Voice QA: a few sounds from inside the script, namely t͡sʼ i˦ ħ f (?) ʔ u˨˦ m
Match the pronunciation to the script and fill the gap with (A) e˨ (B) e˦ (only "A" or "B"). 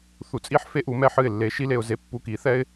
B